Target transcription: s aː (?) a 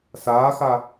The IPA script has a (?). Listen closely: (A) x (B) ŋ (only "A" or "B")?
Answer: A